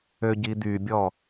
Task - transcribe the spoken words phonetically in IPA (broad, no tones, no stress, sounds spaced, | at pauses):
ø ɟ i d̪ y bʲ ɔ